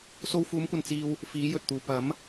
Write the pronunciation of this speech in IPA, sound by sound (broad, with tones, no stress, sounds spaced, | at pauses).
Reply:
s o˧ w f uː˨˥ m kʷ ɐ˨ n t͡s iː˧ w | f iː˨˥ j ɵ˨ t̚ t̪ uː˨ p ɐ˨˥ m